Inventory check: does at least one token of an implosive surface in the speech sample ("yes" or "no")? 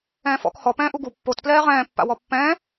no